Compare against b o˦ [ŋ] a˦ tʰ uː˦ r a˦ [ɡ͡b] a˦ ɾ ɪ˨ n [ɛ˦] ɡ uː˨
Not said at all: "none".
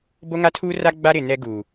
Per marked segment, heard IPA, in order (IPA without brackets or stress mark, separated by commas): ŋ, ɡ͡b, ɛ˦